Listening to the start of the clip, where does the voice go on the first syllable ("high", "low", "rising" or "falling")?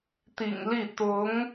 low